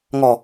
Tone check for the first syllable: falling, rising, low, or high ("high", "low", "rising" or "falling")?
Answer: low